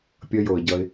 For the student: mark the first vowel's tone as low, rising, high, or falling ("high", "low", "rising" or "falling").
high